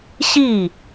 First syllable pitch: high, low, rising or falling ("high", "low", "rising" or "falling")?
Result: falling